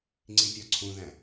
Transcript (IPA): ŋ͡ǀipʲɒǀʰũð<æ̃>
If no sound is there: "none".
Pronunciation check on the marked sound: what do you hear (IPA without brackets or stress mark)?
æ̃